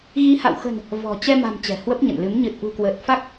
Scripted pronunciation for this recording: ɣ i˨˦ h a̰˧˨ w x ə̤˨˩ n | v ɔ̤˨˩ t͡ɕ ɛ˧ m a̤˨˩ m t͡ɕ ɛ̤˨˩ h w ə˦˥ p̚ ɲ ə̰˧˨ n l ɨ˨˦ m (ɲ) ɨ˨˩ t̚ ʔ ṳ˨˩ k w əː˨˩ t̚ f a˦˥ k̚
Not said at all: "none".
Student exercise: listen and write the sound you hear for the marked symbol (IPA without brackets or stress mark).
ɲ